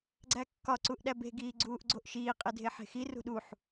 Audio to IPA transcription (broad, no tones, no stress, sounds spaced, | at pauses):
ɡ͡ǀ æ kː ɒ ǀ u ʔ ɗ æ b e̤ ɡ iː ɡ͡ǀ uː ʔ ɡ͡ǀ o ʔ ʃ iː qʼ e dʱ e ħ e̤ x i r ṳ ɗ u ħ